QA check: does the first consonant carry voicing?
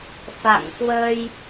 no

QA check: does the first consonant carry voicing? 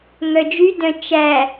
yes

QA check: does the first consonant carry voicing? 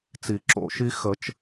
no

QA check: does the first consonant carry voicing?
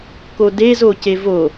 no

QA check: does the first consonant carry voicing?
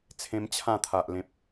no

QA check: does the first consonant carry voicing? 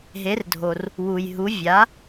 yes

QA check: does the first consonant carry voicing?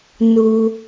yes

